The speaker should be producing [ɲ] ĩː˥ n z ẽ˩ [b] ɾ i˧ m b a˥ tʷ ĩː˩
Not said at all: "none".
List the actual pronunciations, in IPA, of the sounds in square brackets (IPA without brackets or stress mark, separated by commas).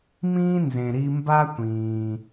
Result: m, none